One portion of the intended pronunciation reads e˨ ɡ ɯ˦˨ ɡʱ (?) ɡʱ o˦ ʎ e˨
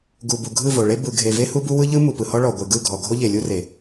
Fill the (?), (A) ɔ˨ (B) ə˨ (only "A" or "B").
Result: A